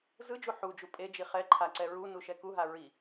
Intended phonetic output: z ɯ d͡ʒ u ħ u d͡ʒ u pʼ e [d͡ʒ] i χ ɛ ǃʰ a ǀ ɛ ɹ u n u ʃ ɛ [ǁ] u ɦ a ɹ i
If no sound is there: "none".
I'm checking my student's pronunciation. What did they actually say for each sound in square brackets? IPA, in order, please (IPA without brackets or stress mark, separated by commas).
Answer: d͡ʒ, k